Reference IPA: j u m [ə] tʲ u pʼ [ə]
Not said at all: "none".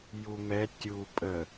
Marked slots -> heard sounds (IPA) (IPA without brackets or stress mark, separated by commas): ɛ, ə